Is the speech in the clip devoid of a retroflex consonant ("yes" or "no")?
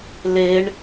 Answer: no